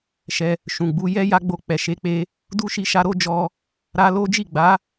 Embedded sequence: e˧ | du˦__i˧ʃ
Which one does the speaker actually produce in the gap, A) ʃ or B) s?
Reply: A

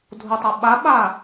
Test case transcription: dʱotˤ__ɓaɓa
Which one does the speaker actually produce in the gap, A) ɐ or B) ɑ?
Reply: A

